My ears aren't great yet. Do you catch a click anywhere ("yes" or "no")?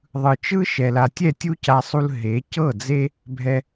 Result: no